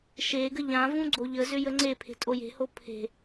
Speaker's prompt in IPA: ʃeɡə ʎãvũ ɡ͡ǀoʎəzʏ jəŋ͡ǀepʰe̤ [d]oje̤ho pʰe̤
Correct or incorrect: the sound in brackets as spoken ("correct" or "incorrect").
incorrect